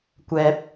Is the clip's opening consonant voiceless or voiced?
voiceless